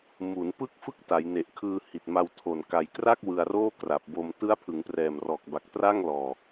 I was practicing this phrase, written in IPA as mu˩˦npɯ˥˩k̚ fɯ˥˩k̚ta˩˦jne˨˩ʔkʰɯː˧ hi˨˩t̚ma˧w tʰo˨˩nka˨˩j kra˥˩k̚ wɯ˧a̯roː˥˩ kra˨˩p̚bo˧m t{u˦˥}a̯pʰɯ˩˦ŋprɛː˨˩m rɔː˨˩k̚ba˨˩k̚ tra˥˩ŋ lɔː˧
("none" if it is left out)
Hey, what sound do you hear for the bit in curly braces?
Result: ɯ˦˥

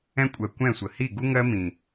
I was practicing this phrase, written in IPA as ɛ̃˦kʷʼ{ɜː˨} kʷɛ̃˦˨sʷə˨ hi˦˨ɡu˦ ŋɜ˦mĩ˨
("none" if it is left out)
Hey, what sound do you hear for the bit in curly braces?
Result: ɜ˨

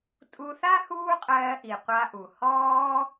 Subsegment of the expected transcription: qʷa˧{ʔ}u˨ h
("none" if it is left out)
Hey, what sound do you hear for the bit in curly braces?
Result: ʔ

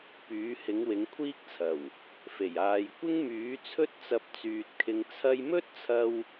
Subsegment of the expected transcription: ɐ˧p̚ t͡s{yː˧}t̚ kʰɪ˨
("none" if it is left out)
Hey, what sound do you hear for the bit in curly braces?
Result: yː˧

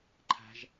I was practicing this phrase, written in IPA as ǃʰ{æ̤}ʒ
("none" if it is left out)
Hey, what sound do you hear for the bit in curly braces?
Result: æ̤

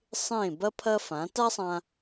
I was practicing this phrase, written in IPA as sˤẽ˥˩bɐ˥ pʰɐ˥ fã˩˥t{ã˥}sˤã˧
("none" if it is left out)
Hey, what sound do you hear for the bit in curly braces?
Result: a˥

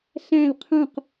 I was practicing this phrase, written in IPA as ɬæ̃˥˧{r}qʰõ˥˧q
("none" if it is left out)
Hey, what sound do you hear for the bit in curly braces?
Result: l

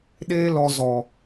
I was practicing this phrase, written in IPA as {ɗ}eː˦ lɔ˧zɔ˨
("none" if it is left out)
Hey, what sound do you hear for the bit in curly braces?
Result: ɗ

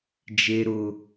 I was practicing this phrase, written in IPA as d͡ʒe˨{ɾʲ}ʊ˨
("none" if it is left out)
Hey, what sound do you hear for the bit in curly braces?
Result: ɾ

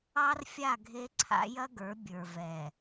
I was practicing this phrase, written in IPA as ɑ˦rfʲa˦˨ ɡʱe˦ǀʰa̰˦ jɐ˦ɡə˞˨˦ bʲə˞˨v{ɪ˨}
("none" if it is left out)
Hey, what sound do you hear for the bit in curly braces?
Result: ɛ˨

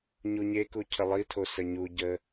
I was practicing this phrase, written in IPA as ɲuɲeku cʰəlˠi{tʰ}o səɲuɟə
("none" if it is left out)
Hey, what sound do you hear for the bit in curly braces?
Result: tʰ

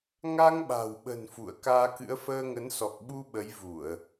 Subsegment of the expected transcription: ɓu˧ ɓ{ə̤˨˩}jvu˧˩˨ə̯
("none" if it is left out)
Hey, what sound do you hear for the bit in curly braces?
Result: ə˨˦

